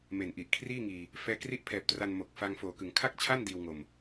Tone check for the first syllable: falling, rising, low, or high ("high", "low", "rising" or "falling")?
low